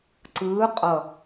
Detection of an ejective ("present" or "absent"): present